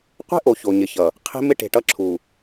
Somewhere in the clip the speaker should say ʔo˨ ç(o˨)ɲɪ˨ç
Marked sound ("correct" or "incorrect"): correct